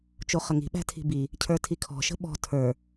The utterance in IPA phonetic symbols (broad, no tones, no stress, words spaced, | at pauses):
t͡ʃoχəŋi̤ ɓæ̤tʰi̤bi | cʰə˞tʰikʰɔ̤ʃə̤ ɓɔ̤ tʰə˞